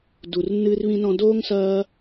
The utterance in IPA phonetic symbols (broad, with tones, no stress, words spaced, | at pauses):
du˨rnːɨː˧rβĩ˧nɔ̃˧ doː˦ŋsɐː˦